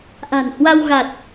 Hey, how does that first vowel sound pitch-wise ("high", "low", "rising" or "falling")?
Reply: low